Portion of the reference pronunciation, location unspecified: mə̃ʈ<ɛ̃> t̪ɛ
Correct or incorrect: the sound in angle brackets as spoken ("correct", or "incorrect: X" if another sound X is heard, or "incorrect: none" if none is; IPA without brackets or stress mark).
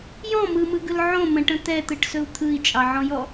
incorrect: ə̃